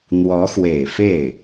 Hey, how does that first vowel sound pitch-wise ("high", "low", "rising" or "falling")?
rising